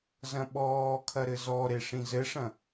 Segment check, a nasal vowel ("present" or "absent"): present